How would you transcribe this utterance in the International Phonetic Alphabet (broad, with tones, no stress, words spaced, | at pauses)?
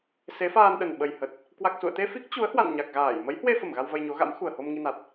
se˨˦faː˧nɗə˨˩n ɓə˨˩jhə˨˩t̚ | kwa˨˩k̚sṵ˧˨ə̯t̪e˧ fi˦˥k̚t͡ɕu˨˦ə̯hwa̰˧˨n ɲa˨˩k̚ɣaː˧˩j mə˨˦jhwe˧fə˧˩m ɣa˧wvə˧jɲo˨˦ɣa̰˧˥m xu˨˩ə̯ho˧m ŋi˧na˨˩t̚